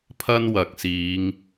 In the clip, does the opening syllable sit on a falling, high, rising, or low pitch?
high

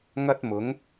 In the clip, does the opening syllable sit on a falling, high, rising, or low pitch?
high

